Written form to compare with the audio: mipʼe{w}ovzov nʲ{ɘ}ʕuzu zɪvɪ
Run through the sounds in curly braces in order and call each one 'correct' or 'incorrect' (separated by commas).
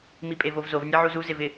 incorrect, incorrect